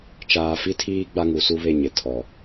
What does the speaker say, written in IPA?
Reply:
t͡ʃ aː˨ f i˦ tʰ iː˦ ɡ͡b a˦ ŋ u˨˦ s u˦ β e˦˨ ɲ ɪ˨ tʰ ɔ˨

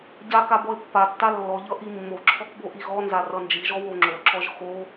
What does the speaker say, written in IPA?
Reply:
ɟ a k a b ɔ ɪ̯ pː a tː a lː ɔ ʎ ʌ ʔ i mː o ǁʰ ɔ k b o ʔ i ɣ ɔ n z a r ʌ n d͡ʒ i ʒ ɔ w o ŋ͡ǁ o ǁ ɔ ʒ x o

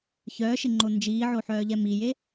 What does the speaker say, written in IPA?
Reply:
ç œː ʃ ɪ ŋ͡ǃ o n d͡ʒ iː ʕ o ħ œː ʎ ɛ m i j e

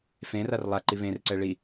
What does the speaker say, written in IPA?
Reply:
f ẽ r a r lˠ a ǃ i β ẽ r ǀ ɛ ɭ i

